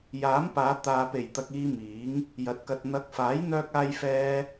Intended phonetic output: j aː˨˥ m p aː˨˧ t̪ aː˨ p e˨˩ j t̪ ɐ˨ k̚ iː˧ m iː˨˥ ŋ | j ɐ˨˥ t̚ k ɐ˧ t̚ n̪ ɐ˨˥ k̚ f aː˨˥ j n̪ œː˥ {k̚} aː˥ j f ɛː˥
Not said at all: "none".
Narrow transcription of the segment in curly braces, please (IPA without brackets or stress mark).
k̚